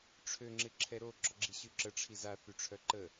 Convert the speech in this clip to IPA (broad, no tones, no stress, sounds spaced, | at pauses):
ʈ͡ʂʰ ø ŋ͡ǁ ɪ ǁʰ ɛ ɾ o ɡ͡ǁ ɔ ɡ͡ǁ i ɕ y ǁ ə ʈ͡ʂʰ i z a θ y ʈ͡ʂʰ œ ǃ ə